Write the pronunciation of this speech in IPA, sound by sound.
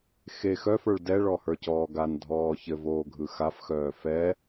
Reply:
xe xœfə˞ɭ dɛɭɔhə˞cɔː ɡandʱɔː çɘvoːɡʱɯ xafxœː fɛ

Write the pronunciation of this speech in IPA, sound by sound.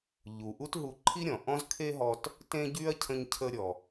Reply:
ʎu˩ʔu˧t ɦu˧ǃʰi˥ɾʲɔ̃˩ ʔɔ̃˥zkʰe˥ɦɔ˧t | tẽ˥ɟy˥ɐ̯ cʰə̃˧ɲcʰə˧ɾʲɔ˩

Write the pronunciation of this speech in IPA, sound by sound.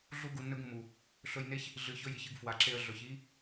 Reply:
ɮu˦ ɡu˧nːɵ˦ɡmːu˨ | ɬɵ˧j ne˦ç | ɮɨ˨ çɵ˧ji˨çɨ˦˨ɡ fwa˨ǁe˧ə̯ ɮɵ˨çi˦

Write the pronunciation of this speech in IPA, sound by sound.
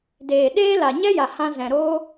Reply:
deː˨ɗeː˦la˨ ɲɛ˦ja˨ hã˧zɛ̃˨ ɾoː˧

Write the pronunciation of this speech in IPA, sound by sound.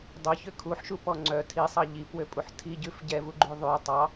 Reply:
dˤœçø kʰuħʃupɔ ŋ͡ǀœ tʰisˤɑ ʎipwøpʼuħ tʰiɟʉf ɟɛvuɡ͡ǃʉ ðˤʉ tˤɑ

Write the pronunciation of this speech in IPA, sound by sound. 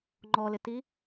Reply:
ŋ͡ǃɔlɪti

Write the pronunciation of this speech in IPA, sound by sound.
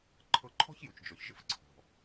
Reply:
ǃʰɤ˧ǃʰɔ̤˥çju˩t͡ʃd͡ʒɔ˩ç ʒə̰˥fǀʰɔ̤˩

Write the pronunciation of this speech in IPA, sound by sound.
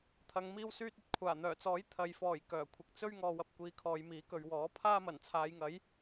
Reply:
t̪ʰɐ˨˧ŋmiː˥wsyː˥t̚ ɵ˥t̚kʷʰaː˨˩ n̪œː˨˩t͡sɔː˨˥j t̪ʰɐ˨jfɔː˨˩j kœː˨˩kʷʰɪ˨k̚ t͡sɵ˥ɥŋɔː˨ wɐ˥p̚kʷiː˧kʰɔː˨˧jmiː˨˥ kɵ˨ɥwɔː˨˥ pʰaː˥mɐ˨˩nt͡sʰaː˨˧jŋɐ˨˥j

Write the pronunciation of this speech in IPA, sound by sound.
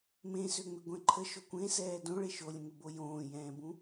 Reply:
mẽsøŋ͡mʏ ɡʷɛ̃ǃʰə ʃokʷẽsɛː dõɭe ʃolʲə̃ŋʏbo jõːjɛ̃ːbũ

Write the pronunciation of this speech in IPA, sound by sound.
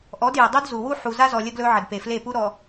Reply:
ʔɔ˨˦dje˨dˤu˦d zu˨wu˦ ħu˨za˦zɔ˨ lʲə˦ɡlɵ˦ʕə˨dpe˨ fle˦˨pu˦ɾɔ˨

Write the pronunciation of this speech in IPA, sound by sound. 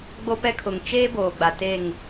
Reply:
ɡ͡bo˦pɛ˦ kʰʊ˨ŋ t͡ʃeː˦boː˨ ɡ͡ba˨te˦˨ŋ

